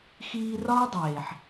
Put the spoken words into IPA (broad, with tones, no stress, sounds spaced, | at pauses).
x iː˧ r ɒː˦ dˤ eː˨ ħ